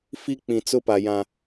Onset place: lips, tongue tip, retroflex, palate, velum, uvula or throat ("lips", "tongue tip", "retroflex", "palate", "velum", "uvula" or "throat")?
lips